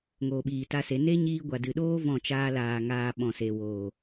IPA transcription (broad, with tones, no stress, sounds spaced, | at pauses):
ŋ oː˨ ɓ iː˨ t a˧ s e˨˦ n e˦ ɲ iː˦ ɡʷ a˨ d ɨ˨ ɗ oː˦ v ɔ̃˦˨ t͡ʃ aː˦ l aː˧ ŋ aː˧ ɓ ɔ̃˨ s e˨ w oː˨